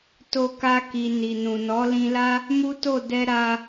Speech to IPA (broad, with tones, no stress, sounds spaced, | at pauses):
t o˧ k a˧ k i˨ n i˨ n ũ˨ n ɔ˨˦ l ĩ˧ l a˦ | m u˦ t o˦˨ d ɛ˧ ɾ a˧